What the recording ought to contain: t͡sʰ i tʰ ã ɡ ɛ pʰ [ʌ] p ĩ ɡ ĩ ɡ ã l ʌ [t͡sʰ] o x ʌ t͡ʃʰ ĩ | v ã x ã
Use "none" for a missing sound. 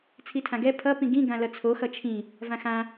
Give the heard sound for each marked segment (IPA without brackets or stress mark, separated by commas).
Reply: ʌ, t͡sʰ